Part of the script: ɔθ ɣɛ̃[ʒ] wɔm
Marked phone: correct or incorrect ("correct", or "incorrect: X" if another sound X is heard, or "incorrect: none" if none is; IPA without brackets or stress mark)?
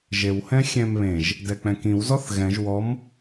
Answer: correct